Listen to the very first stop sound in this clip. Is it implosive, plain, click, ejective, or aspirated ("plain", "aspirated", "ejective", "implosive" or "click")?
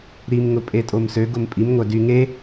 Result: ejective